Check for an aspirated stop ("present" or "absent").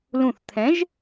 present